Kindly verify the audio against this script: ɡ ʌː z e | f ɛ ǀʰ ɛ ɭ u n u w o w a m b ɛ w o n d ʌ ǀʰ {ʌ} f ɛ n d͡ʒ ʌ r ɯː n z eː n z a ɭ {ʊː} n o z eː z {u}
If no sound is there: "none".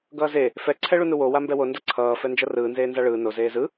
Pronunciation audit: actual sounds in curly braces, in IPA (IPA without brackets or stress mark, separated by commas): ʌː, ɯː, ɯ